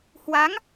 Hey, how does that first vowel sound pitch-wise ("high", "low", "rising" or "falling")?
rising